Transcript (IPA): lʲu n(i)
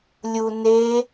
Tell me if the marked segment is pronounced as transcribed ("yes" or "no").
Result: no